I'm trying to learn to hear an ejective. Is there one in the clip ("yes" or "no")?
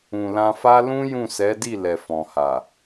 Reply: no